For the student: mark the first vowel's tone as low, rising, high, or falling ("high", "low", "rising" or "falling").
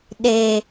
low